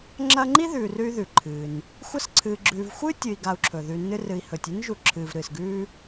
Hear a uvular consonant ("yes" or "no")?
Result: no